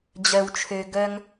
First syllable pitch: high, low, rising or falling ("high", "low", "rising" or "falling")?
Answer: high